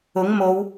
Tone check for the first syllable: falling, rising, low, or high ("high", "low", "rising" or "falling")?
rising